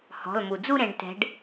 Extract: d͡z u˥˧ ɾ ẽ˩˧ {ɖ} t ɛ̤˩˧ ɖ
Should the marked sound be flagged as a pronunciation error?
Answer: no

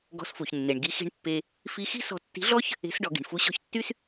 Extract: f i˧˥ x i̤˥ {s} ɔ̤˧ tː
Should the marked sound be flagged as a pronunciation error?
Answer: no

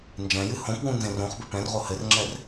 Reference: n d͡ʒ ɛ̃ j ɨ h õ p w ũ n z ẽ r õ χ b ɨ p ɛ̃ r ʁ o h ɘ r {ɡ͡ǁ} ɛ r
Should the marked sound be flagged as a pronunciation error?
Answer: yes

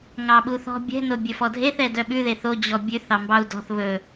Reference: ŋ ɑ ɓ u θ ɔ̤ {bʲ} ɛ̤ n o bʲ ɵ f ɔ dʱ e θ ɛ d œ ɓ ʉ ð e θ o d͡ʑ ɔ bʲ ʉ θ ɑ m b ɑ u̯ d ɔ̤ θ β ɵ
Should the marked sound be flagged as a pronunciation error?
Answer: no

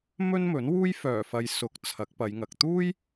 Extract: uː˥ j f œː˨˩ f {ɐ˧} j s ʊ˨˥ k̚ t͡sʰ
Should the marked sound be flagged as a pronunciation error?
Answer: yes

